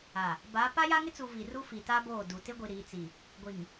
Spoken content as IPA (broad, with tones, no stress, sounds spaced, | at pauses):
a˨ | b a˨˦ p a˦ j a˦ ŋ ɪ˦ t͡s u˨ v i˨ r u˦ f i˨ t a˦ b oː˦˨ d u˨ t ɪ˦ ɡʷ i˨ ɾ iː˨ t͡s i˨ | ɡʷ i˨ ŋ